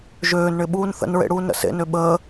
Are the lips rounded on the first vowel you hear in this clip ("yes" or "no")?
yes